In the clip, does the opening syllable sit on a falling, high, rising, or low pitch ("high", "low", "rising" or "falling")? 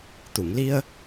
low